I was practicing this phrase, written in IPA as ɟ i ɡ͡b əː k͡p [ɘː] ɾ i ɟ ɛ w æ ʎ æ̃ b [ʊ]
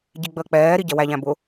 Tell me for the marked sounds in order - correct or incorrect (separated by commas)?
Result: incorrect, correct